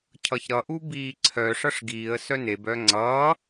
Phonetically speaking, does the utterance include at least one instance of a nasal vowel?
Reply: no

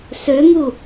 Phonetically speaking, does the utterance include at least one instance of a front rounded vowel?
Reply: yes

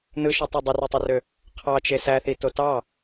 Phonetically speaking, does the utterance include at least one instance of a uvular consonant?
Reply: yes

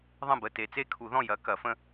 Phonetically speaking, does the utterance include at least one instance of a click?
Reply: no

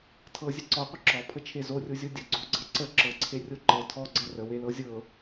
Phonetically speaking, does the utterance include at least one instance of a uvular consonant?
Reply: yes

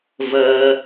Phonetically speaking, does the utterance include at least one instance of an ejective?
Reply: no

